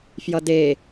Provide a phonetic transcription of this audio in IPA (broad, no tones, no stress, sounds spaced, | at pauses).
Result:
f j ʌ d e